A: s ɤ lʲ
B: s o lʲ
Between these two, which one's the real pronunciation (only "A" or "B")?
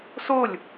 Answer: B